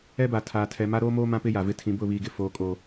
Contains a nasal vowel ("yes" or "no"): yes